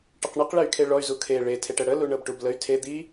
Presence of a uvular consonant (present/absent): present